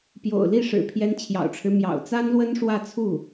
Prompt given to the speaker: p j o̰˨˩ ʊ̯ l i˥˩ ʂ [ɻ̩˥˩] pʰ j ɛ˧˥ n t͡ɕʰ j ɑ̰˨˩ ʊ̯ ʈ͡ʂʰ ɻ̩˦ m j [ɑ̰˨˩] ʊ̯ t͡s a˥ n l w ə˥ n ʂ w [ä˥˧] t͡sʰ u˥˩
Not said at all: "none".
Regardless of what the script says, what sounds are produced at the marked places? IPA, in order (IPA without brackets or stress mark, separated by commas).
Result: ɻ̩˨˩, ɑ̰˨˩, ä˥˧